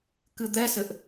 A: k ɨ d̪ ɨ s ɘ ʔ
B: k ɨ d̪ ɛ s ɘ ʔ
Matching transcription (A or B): B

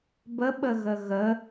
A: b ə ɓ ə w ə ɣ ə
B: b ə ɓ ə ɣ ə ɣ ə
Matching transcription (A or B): B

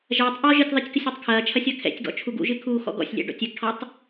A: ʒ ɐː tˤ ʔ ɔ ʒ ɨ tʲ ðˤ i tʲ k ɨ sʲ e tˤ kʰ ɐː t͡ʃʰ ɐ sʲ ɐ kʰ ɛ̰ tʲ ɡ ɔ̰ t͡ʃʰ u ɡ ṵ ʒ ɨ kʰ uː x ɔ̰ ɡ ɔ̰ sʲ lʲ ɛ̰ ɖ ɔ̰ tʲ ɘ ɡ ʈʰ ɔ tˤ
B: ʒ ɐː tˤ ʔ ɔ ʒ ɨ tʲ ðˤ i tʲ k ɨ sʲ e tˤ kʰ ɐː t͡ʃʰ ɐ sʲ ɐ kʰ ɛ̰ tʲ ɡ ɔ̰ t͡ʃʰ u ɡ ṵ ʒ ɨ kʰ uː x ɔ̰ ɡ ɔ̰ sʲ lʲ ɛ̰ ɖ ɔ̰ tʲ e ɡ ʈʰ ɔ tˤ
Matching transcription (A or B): A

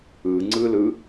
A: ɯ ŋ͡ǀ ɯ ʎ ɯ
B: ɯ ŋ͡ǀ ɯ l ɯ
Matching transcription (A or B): B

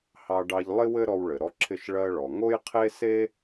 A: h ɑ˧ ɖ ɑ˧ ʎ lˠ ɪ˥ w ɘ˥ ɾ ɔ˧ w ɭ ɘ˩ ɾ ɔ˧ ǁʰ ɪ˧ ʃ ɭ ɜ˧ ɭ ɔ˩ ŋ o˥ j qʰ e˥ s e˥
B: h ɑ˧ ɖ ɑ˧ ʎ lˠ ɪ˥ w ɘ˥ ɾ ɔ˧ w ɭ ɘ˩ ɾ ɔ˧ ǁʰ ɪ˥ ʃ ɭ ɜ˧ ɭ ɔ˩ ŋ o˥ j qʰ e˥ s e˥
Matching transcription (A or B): A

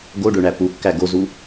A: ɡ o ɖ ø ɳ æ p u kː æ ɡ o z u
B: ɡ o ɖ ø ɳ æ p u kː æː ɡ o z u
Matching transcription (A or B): A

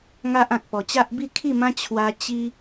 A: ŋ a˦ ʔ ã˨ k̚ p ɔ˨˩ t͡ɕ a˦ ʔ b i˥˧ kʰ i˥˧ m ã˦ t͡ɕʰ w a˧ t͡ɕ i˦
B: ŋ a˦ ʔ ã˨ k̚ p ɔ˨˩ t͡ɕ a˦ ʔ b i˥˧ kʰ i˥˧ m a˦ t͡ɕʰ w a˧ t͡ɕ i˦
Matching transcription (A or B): A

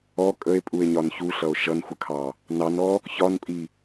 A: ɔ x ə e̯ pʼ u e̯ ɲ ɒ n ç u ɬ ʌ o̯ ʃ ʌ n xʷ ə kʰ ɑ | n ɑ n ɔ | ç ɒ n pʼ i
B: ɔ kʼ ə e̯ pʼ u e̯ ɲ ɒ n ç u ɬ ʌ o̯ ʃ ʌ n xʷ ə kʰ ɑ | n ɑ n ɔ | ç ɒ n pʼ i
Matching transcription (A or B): B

